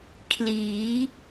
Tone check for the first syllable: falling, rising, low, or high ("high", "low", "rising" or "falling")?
rising